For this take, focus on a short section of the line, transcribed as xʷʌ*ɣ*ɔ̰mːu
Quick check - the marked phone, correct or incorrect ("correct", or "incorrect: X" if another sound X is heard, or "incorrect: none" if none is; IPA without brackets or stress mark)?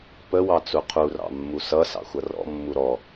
incorrect: r